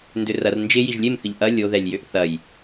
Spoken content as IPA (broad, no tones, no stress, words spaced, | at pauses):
ndʏrɐr nd͡ʒɪ jiʒlʲemθɪʎ ʔɐ lʲoðɛlʲjøʔ θɐj